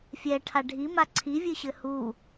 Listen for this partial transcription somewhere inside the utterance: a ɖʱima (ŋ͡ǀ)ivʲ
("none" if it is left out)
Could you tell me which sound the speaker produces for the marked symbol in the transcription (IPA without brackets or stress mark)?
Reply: ǀʰ